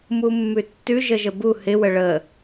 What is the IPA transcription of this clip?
m u mː ʉ tː ʉ ʒ ə ʒ ə b u h ɪ w ə ɭ ə

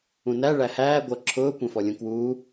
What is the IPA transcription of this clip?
ũ n æ ɭ æ h æː ɡʷ ʌ ǁʰ ʊː kʷ ɛ̃ f ɔ lʲ ũ k w uː

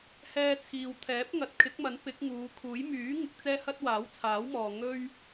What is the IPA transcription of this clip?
h ɛː˧ t͡sʰ iː˨ w t̪ʰ ɛː˨˥ p̚ ŋ ɐ˨˥ t̚ kʰ ɪ˨˥ k̚ m ɐ˨˥ n p ɪ˨˥ k̚ ŋ uː˨˧ kʰ uː˨˥ j m yː˨˥ ŋ ɪ˧ k̚ t͡s ɛː˥ h ɐ˥ t̚ w aː˨˥ w t͡sʰ aː˨˥ w m ɔː˨ ŋ ɵ˥ ɥ

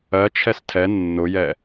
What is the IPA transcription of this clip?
ɜ t͡ʃʰ ɛ s tʰ ɛ nː ʊ j ɛ

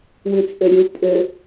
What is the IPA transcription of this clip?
w ʉ t͡sʼ ø ɾʲ u pʼ ø

